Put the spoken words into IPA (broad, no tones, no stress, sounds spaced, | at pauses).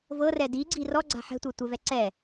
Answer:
v ɤ r ɛ d i ɡ͡ǀ i r ɔ ɡ͡ǀ a̤ ħ ɛ̤ tʷ ɛ tʷ ɛ v ɛ ǀ ɛ